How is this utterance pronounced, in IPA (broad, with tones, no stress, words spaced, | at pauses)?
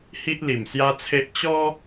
hi˦ʔli˨˩msja˦t͡sʰe˦ʔ t͡ɕɔ˦